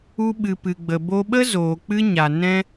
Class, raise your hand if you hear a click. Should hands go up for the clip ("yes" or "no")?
no